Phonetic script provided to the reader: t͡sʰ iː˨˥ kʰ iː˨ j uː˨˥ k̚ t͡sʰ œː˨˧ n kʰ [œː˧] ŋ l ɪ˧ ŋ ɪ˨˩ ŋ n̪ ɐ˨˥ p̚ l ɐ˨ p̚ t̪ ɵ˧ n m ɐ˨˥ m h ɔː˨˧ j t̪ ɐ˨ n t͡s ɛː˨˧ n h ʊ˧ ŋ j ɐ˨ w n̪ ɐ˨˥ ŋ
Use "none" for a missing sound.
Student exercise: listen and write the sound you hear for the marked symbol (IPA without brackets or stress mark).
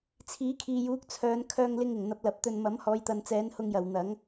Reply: œː˧